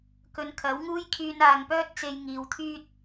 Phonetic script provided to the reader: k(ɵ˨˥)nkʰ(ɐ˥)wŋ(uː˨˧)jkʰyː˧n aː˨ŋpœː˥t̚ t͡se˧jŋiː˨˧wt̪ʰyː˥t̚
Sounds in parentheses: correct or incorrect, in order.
incorrect: ɵ˨˧, incorrect: ɐ˨˥, incorrect: uː˥

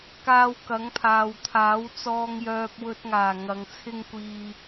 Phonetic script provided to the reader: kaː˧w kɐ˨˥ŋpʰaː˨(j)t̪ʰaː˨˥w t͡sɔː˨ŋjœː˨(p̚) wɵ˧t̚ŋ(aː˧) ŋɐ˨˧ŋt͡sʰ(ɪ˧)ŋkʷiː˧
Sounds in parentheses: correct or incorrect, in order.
incorrect: w, correct, incorrect: aː˨˩, incorrect: ɪ˥

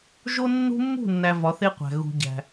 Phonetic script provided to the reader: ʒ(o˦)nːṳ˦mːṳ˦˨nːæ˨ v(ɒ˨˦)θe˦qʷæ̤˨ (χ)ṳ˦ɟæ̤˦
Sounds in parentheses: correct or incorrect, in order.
correct, correct, incorrect: ɣ

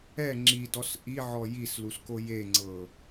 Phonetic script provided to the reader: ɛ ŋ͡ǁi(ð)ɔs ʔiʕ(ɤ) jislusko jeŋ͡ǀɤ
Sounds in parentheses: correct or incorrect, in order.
incorrect: d, incorrect: ɔ

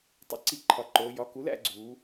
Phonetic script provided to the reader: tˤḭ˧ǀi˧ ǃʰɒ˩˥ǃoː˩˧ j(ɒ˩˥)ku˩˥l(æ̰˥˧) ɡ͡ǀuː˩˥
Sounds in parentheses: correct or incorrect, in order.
correct, correct

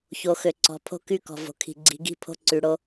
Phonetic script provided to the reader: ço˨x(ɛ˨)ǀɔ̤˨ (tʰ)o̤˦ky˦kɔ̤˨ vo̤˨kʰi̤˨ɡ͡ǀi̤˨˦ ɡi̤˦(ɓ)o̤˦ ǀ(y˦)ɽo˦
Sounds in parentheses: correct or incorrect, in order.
incorrect: ø˨, incorrect: pʰ, incorrect: pʰ, incorrect: y˨

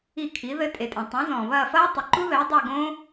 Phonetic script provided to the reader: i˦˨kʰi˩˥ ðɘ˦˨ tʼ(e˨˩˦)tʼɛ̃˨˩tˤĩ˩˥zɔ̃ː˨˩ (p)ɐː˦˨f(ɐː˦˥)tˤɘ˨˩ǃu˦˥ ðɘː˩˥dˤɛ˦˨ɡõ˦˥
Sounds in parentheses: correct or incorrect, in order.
incorrect: e˨˩, incorrect: β, correct

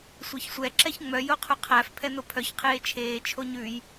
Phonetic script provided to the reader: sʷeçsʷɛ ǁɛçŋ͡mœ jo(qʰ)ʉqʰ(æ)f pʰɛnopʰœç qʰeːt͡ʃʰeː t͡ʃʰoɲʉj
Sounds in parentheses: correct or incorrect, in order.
correct, correct

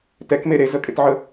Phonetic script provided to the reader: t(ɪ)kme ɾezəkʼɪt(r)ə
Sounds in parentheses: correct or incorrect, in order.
incorrect: ɛ, incorrect: ʕ

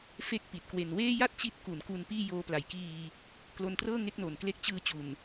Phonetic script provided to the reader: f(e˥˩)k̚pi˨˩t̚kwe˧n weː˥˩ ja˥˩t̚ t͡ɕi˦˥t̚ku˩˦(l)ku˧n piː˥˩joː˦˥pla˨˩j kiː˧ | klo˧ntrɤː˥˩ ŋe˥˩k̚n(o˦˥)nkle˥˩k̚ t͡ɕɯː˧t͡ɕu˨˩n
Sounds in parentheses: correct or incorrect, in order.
correct, incorrect: n, incorrect: o˨˩

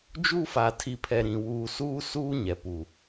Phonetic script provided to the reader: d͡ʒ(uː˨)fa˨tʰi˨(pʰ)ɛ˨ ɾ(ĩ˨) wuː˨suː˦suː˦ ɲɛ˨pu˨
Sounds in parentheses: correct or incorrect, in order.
incorrect: uː˦, correct, correct

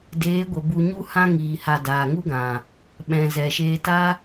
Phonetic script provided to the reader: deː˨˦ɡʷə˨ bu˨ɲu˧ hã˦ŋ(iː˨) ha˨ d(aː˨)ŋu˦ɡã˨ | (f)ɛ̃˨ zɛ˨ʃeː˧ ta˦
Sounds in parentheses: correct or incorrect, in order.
correct, correct, incorrect: ɓ

